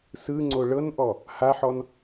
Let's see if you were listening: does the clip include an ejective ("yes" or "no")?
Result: no